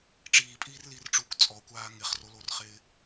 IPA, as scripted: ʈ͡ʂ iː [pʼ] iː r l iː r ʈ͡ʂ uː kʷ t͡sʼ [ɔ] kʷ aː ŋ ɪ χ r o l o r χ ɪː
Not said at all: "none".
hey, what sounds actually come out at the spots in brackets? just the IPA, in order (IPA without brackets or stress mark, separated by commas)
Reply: pʼ, ɔ